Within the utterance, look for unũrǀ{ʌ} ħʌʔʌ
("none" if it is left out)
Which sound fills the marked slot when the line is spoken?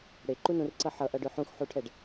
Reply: ʌ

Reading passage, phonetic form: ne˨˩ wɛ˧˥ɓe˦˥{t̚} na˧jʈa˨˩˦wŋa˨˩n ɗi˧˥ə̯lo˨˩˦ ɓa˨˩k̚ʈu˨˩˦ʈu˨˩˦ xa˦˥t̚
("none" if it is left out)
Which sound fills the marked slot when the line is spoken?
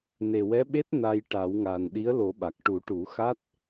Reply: t̚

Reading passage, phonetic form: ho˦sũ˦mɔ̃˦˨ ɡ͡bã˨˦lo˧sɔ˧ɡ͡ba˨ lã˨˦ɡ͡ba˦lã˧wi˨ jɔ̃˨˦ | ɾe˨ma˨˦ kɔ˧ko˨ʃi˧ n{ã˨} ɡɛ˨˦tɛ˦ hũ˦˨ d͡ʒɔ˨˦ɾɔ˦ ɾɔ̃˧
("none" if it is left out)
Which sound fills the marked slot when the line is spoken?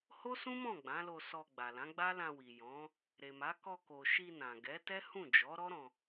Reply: ã˨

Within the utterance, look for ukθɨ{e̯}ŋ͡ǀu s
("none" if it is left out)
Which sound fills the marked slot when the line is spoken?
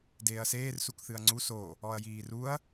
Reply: ɐ̯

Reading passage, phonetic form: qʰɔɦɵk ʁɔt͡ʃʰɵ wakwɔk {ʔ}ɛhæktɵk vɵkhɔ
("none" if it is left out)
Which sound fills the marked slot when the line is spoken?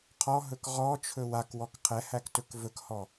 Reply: qʰ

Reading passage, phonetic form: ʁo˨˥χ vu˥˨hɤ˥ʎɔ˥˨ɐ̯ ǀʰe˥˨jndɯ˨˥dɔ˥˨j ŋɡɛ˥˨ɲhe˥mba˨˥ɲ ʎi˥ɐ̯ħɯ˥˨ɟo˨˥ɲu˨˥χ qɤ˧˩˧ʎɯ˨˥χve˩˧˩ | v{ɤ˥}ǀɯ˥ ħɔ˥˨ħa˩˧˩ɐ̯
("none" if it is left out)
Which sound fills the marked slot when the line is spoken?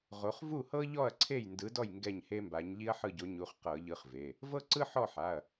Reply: ɤ˥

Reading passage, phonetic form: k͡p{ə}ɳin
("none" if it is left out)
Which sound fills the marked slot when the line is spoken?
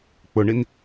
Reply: ʊ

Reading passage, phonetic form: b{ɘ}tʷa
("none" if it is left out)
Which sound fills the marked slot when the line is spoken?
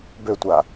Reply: ø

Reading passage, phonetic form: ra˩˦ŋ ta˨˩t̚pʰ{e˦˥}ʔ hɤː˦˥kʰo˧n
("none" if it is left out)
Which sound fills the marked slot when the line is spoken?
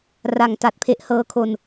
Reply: e˦˥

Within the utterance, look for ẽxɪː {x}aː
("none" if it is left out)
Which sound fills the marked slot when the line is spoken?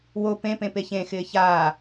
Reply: ç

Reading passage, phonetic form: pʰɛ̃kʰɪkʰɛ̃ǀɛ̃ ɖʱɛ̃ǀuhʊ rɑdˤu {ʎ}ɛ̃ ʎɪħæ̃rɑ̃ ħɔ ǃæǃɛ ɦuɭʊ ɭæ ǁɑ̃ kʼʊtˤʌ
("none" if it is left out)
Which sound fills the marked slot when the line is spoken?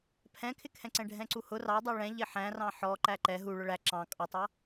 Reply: ɭ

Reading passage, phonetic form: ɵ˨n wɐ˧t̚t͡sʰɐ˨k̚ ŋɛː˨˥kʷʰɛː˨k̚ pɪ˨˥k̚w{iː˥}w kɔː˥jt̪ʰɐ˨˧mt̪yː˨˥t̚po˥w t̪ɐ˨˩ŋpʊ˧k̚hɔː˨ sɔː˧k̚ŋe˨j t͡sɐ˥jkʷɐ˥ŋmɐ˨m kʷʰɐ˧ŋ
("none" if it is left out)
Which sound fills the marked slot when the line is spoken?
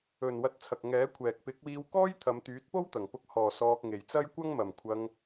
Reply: iː˧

